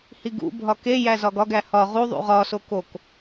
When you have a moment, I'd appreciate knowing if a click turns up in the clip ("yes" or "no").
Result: no